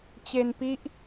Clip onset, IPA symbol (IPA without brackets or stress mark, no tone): t͡ɕ